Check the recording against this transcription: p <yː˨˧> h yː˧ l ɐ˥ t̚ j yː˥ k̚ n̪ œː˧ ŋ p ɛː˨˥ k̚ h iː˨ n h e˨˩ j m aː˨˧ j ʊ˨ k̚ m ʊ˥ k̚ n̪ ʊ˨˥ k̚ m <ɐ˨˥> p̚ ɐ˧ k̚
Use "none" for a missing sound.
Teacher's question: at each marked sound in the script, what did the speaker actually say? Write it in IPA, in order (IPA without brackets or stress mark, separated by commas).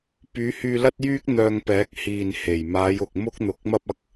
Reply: yː˨˧, ɐ˥